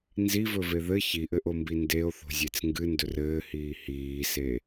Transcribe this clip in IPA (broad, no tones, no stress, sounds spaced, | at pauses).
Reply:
n z i v ɵ v e ð ɘ ç i ʔ ɘ ʔ o m b i n d e o̯ θ o̤ zʲ e t͡s ŋ ɡ ɨ n d ɵ r ɘː h iː h iː s e